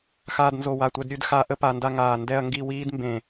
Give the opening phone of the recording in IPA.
x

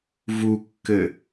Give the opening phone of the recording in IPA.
v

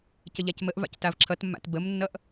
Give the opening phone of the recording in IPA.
c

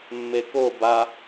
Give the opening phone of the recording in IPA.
mː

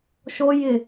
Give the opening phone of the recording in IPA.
ʃ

